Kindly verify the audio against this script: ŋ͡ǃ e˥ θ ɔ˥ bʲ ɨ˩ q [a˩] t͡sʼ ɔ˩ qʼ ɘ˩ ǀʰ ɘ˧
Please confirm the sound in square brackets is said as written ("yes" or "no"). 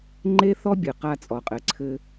no